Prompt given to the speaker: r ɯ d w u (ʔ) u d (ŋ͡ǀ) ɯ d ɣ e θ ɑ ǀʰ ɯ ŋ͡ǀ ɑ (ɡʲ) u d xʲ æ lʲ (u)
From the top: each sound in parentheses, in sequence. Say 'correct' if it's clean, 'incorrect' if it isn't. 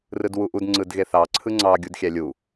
correct, correct, correct, correct

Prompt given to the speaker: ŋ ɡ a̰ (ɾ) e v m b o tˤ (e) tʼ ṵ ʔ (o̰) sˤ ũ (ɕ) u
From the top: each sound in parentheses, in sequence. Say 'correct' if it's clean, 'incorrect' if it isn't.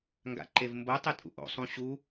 incorrect: ǃ, correct, correct, correct

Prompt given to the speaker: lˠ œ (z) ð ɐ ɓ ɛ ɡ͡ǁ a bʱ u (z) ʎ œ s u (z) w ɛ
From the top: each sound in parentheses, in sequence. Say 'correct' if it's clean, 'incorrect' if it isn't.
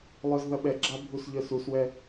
correct, incorrect: s, incorrect: s

